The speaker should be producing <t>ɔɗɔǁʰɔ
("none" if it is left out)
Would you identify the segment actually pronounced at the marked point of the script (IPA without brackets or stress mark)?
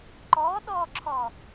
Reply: ǃ